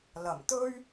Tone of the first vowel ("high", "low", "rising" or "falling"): low